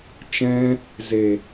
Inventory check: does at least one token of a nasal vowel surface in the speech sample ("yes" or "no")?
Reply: yes